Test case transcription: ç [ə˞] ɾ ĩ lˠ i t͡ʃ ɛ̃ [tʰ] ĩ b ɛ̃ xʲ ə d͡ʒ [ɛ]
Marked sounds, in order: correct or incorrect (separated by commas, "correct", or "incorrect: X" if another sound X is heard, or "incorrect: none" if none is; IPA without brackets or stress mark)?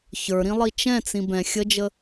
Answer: correct, incorrect: t͡s, incorrect: ə